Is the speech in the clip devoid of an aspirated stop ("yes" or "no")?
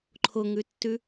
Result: no